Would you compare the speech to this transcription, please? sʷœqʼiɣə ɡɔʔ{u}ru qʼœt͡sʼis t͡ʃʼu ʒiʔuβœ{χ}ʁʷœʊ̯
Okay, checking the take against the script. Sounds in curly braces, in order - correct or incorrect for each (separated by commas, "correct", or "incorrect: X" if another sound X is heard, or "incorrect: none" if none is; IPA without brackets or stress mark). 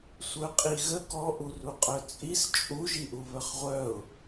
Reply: correct, correct